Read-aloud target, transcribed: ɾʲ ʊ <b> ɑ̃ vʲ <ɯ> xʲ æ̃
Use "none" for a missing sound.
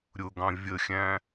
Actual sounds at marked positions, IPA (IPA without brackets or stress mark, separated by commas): ɡ, ə